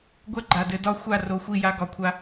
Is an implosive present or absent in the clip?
absent